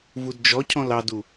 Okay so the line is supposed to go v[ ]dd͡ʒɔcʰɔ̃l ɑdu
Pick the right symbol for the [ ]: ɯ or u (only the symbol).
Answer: u